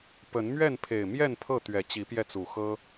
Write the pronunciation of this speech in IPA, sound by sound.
pə˨˦nmɥɛ˥˨npʰe˨˩ɪ̯mjɛ˥˨n pʰɤ˥˨t̪ɥɛ˨˩ t͡ɕi˨˦pjɛ˧t͡su˨˩xɤ˦

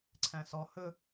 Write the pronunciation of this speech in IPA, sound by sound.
ǀʰæ̃sɔ hɵ

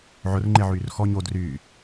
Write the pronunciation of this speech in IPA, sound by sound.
ʕʊrŋ͡ǃeʕyːr xɔ ɲo dryː

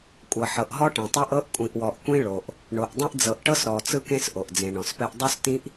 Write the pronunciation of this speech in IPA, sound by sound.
kʷʼɤ˨ħɤ˨ʔ ɦɔ˦ʈẽ˨tˤɛ˦ʔ ɤ˦ʔ kʷʼĩ˨ʔwɔ˨ʔkʷĩ˦ɭo˨ʔ | ɳo˨ʔdˤĩ˦ʔ d͡zɤ˨ʔʈɤ˦s ɾɔ˨t͡sɯ˦kẽ˦s ʔo˨ʔd͡zẽ˨ɳɔ̃˨spɛ˦ʔ dˤo˦s tĩ˦ʔ

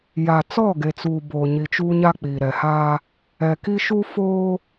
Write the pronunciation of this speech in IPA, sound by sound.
ja˨ t͡sɔ˦˨ɡe˨t͡suː˨ boː˨ɲi˨t͡ʃuː˦ ɲa˦k͡piː˨ɾɛ˨haː˦ | ɛ˨ki˦ʃu˦ foː˦

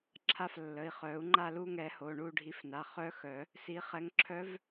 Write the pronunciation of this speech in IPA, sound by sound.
ǁʰa˥˨f lːə˩˧˩i̯χœ˨˩˦u̯ ŋ͡ǃa˥˨lu˥˨ŋɛ˨˩˦ ho˩˧˩ɳu˥˨ɖʱi˨˦fna˩˧˩ χœ˦˥xœ˨˩˦ | si˨˦ χɛ˨˦ŋǁʰœ˦˥v

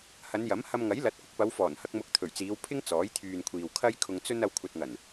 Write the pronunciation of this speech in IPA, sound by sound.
hɐ˨˧njɐ˨˥m hɐ˧mŋɐ˨˥jlɐ˨˥t̚ kʷɪ˧k̚pɐ˨˧wfɔː˨˩n hɐ˧k̚mʊ˨˥k̚ t̪ʰɵ˨˩ɥt͡siː˨˧wpʰɪ˥ŋ t͡sɔː˨˥j t̪ʰyː˨nkʷʰiː˨w kʰɐ˥j kʰʊ˧ŋt͡sɵ˥n ɐ˧wkʷʰɐ˨t̚ŋɐ˨˩n

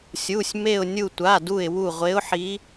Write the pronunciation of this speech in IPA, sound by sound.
sʲu˩˧˩sʲ me˧˩ʊ̯nʲu˧˩ tʷa˩˧˩du˧˩ɪ̯ wu˧˩ʁʷe˨˦ʊ̯ħi˨˦

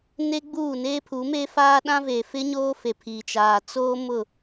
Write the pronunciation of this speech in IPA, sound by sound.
ne˦ɡ͡buː˦˨ neː˦pʰu˨˦meː˦ faː˦ ɗã˦veː˨fɪ˦ɲoː˦ fe˨pʰi˨t͡ʃaː˨ t͡soː˦mʊ˦˨

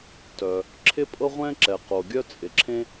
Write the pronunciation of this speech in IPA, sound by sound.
tœ˩ | ǁʰɪ˥pʼɤ˥ʁʷɛ̃˥ǁɛ˩ qo˩ɡʲœ˥t͡sʼɪ˩ ǁʰẽ˥

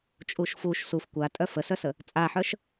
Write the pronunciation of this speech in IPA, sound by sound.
t͡ʃʼuʃfuʃ suf kʷa tʼœfəsœsə | t͡sʼaħœʃ

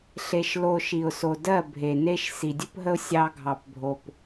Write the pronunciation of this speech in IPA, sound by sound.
ɬe˧ʃlo˧ ʃi˨ʊ̯so˨dɜ˦˨ bʱe˨ne˦ʃ si˨dʲɵ˦pɦə˦ʊ̯ sʲɑ˧ɡʱɑ˨p bʱo˨p

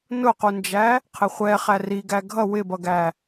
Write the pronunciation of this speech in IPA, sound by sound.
nʊqund͡ʒæ | qʰɪχʷɛ χæriɡæ ɡʱʌ wɪbʌɡæ

